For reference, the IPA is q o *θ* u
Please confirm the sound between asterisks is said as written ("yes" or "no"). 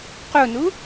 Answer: no